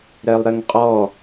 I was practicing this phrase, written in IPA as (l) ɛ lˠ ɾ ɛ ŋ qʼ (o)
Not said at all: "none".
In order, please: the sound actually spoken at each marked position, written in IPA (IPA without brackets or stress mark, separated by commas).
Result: ɾ, ɔ